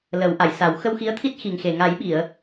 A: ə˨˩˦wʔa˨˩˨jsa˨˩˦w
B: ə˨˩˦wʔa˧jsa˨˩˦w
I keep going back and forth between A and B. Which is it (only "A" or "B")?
A